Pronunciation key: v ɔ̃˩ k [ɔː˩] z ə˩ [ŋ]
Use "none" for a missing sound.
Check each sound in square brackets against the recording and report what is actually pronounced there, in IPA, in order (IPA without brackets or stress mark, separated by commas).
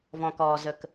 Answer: ɔː˩, k